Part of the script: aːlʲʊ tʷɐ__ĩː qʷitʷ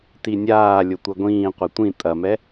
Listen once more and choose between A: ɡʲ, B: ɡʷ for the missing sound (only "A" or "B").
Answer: B